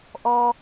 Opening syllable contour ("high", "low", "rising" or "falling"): high